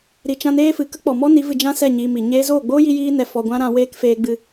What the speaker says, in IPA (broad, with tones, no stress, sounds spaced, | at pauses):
ɾ i˧ t͡ʃ ã˦ n eː˦ f ɨ˨ k ə˦ k͡p ɔ˨ m ɔ˦ n i˨˦ v ɨ˧ d͡ʒ ã˦ s ɛ˦˨ ɲ iː˧ m i˨ ɲ eː˦ z oː˦˨ ɡ͡b oː˦ j i˧ j iː˧ n ɛ˨ f ɔ˨ ɡʷ ã˦ ɾ ã˧ w eː˦ k f eː˧ ɡ͡b ɨ˦